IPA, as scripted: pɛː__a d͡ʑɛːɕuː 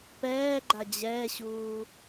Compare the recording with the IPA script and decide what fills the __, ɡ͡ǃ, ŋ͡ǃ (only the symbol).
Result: ɡ͡ǃ